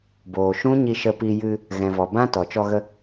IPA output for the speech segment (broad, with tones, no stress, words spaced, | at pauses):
boː˨ʃũ˦ɲi˧ ʃə˧pi˧jɨ˧ | ɣɛ̃˨vɔ˨bã˦ tɔ˨t͡ʃɔ˧ɣə˧